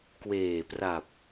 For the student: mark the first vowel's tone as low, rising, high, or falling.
low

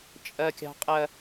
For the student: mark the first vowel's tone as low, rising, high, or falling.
low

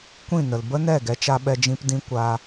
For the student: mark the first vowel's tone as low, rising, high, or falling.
falling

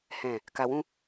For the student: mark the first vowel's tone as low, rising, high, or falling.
low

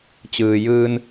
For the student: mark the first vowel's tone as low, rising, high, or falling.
low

